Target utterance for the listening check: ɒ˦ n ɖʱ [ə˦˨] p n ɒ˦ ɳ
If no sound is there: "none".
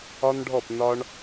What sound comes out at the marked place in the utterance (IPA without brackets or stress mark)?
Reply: ɔ˦˨